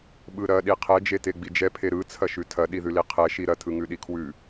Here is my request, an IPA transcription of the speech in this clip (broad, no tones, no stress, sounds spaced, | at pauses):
ɓ ɯ ɾ ɐ ɗ i qʰ ɛ d͡ʒ e t e ɡ͡b i d͡ʒ ɛ pʰ e ɾ ɯ t͡sʰ ɐ ʃ ʉ tʰ ɐ ɗ i ð ʉ l i qʰ ɛ ʃ i ɾ ɐ tʰ ɯ ŋ ʉ ɗ i kʰ w ʉ